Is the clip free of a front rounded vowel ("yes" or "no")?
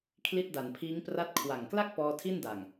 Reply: yes